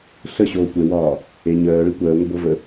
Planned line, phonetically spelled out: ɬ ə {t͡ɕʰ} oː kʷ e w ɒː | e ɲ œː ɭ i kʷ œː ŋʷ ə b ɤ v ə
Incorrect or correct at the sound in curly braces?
incorrect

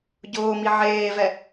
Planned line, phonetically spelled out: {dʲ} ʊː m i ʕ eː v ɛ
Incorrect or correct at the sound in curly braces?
incorrect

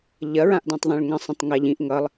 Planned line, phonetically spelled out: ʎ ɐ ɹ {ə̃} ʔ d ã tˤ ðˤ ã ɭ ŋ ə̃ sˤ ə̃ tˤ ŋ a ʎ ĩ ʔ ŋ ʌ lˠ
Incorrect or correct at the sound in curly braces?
incorrect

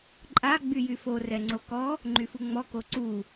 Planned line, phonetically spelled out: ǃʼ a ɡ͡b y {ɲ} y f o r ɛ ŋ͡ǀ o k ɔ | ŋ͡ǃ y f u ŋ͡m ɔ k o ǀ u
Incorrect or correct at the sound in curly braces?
incorrect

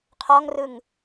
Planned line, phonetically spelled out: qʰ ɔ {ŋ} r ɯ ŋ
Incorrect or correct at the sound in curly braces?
correct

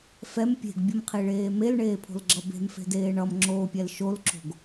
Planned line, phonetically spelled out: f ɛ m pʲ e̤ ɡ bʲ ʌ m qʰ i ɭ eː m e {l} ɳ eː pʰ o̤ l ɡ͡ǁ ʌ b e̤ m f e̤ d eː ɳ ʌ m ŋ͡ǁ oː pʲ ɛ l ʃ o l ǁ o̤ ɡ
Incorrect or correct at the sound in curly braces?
correct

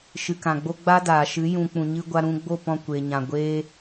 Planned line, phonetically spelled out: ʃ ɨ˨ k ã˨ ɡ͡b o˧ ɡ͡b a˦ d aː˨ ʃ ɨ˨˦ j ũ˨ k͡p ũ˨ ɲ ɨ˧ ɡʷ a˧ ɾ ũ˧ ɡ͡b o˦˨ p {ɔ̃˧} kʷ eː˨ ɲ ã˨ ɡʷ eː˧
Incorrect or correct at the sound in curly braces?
correct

